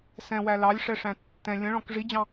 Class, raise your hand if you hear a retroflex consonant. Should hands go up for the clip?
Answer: yes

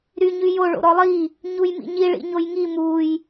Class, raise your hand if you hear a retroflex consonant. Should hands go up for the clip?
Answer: yes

